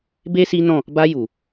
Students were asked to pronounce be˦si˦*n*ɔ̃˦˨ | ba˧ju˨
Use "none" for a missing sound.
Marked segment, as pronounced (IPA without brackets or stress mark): n